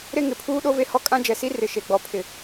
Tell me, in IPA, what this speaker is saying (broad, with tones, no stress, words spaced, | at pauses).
ɾe˦ŋɪ˨pʰuː˦ ɗo˦ve˦hɔ˦ kʼã˦d͡ʒɛ˨si˦ rɪ˨ ʃe˨ɡ͡bɔ˨ pʰɪ˨